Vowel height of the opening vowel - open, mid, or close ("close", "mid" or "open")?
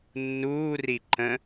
close